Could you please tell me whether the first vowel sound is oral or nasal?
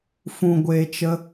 nasal